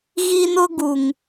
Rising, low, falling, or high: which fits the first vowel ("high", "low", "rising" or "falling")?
high